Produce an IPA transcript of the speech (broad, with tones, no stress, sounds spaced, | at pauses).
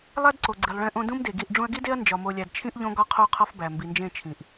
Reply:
lˠ æ˦ d ǀ o˨ ɡ͡ǀ i˨ lˠ ɭ ẽ˦ ʔ õ˦ d ũ˦ m d e˨ ɡ i˦˨ ʔ ɖ͡ʐ ũ˦ ɐ̯ ɡ i˦ d e˦ ɐ̯ n d͡ʒ ɒ˨ m o˨ lʲ æ˨ d t͡ʃʰ ĩ˦ ʔ ʎ õ˦ ɡ ɒ˦ qʰ o˦ qʰ ɒ˦ f b æ˨ m b i˨ n d͡ʒ ẽ˦˨ t͡ʃʰ ĩ˨ ʔ